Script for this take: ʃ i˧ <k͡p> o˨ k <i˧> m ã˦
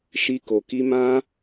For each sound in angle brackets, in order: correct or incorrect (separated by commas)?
incorrect, correct